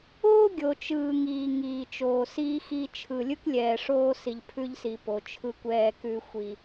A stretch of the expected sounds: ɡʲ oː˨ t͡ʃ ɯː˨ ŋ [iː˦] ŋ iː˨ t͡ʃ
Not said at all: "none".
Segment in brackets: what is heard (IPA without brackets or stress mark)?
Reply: iː˨